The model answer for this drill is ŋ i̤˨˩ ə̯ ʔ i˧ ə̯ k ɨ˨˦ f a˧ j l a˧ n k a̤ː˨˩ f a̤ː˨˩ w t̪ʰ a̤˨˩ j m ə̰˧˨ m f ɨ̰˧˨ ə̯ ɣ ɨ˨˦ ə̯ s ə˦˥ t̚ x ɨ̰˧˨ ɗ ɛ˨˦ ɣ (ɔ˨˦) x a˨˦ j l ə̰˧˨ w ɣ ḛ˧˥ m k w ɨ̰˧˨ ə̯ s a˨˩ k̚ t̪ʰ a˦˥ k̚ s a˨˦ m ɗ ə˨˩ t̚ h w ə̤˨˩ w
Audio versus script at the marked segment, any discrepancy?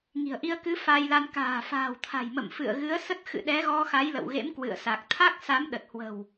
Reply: yes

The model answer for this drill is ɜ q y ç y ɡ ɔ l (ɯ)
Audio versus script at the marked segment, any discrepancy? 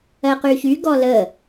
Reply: yes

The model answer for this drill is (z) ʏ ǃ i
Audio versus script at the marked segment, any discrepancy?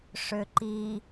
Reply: yes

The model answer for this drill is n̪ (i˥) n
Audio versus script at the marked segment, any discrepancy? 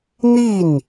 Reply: yes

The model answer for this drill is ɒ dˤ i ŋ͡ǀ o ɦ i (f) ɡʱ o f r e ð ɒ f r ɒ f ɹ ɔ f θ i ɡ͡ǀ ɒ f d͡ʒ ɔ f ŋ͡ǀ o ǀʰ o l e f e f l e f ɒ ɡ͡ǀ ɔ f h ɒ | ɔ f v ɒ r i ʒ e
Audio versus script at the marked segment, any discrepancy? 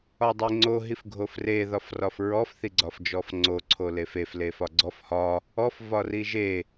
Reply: no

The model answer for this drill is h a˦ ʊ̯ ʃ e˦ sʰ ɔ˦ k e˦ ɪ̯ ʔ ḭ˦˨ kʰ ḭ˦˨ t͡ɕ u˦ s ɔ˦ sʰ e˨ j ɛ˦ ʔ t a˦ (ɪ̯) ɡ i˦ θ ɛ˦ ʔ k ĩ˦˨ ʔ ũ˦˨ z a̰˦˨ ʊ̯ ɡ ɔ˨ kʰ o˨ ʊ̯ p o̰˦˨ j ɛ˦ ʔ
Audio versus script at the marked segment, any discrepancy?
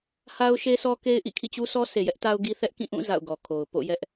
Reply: yes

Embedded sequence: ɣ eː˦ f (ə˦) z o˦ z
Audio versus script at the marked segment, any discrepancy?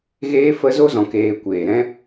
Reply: no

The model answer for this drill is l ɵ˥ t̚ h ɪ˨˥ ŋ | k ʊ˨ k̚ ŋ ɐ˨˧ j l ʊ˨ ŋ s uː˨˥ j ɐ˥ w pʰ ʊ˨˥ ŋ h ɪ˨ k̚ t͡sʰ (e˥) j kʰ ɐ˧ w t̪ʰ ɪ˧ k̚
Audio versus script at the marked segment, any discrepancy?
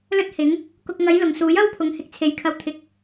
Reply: yes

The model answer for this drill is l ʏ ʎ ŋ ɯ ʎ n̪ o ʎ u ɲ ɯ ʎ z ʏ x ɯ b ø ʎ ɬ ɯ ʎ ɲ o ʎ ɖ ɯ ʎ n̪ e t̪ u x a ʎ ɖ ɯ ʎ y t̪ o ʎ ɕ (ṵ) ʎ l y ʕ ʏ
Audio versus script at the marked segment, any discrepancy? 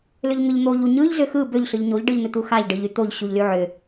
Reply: yes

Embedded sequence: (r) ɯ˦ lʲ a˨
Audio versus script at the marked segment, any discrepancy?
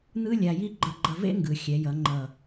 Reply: yes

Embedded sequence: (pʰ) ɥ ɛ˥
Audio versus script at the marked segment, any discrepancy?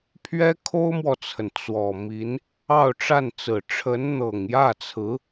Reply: no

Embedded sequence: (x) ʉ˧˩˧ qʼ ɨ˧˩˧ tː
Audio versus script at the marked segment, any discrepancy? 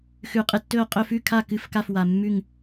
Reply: no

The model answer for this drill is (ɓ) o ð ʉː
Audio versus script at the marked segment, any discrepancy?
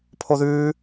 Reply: yes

